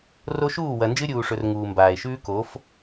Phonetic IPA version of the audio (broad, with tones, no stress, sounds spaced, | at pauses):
r o˦ ʃ uː˦˨ w ɐ˨ n d͡ʒ ɨ˦ ɾʲ uː˨ ʂ ɵ˨ r ŋ uː˨ m b aː˨ e̯ ʃ ʉː˦ k o˨˦ f